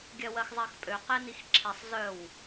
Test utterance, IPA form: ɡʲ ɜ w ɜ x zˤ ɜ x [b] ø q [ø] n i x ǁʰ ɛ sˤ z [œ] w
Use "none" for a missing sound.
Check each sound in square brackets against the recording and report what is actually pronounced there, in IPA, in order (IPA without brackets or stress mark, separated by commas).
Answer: pʼ, ɛ, œ